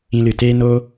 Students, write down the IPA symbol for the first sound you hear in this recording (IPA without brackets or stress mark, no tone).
ĩ